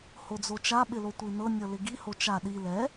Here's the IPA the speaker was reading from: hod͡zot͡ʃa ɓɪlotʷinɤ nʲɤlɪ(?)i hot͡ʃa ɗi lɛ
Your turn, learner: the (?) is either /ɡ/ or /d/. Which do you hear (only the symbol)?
ɡ